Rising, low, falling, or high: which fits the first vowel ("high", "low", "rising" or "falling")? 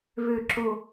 low